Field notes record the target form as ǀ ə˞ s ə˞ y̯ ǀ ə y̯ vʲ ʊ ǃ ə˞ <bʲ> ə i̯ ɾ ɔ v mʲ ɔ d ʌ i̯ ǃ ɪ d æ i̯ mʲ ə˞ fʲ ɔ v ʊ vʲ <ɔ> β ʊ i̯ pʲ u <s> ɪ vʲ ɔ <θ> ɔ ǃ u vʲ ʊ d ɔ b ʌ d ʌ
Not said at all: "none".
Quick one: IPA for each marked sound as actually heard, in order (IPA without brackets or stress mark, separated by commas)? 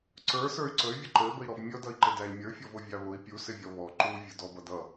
b, ɑ, s, β